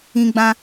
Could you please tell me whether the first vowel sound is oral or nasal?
nasal